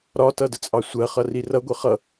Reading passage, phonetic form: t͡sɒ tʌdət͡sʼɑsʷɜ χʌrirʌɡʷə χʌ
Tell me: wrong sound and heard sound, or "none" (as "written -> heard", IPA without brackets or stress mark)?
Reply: t͡s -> ɾ